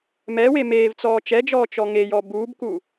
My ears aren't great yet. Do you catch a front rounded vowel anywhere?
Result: no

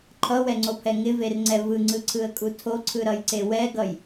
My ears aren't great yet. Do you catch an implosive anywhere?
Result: no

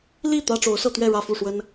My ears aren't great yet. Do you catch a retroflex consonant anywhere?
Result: yes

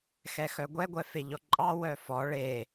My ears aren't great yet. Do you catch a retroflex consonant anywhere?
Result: yes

